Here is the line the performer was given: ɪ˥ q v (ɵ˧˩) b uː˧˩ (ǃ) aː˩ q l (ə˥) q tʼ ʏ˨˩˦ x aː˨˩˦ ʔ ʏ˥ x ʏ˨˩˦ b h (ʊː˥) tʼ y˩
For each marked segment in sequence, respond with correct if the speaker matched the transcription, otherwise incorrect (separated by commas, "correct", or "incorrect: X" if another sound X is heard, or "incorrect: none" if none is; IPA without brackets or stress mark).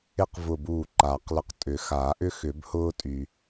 incorrect: ʊ˧˩, correct, incorrect: ə˧˩, correct